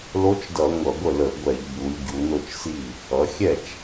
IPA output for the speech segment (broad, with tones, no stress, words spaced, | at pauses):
lo˧˥t͡ʃdʌ˧˩˧ ŋʷʌ˧˩˧ɡʷə˥˩lə˧˩˧ɡʷɛ˧˩˧ʎ bu˩˧lʲ ɟu˩˧no˥˩t͡ʃsi˥˩ | ʌ˩˧xʲɛ˥˩t͡ʃ